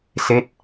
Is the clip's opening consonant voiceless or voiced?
voiceless